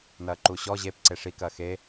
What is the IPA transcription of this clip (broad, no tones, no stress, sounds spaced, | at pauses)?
n ɐː ǃ u ɕ ɔ ʑ e p ǀ e ʂ i k ɐː x e